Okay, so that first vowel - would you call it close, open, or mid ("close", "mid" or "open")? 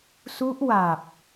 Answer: close